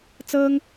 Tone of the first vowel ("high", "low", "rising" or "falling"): high